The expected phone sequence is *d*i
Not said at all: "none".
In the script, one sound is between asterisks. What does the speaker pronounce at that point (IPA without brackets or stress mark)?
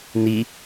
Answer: n